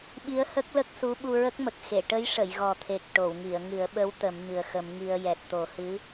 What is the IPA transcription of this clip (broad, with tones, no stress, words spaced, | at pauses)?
ɓi˧˥ə̯hə˦˥k̚lə˦˥k̚su˧˥ ɓu˧ɹə˦˥k̚mə˨˩k̚ xe˨˩˨ʈə˧˥jʂə˨˩˨j ɣɔ˨˩t̪ʰe˨˩k̚ ʈo˨˩˨wŋi˨˩˨ə̯ŋɨ˨˩˦ə̯ɓə˧˥w t̪ə˨˩˦mɲɨ˨˩ə̯xə˨˩˦mŋi˧ə̯ jɛ˨˩t̚t̪o˨˩˦hɨ˧˥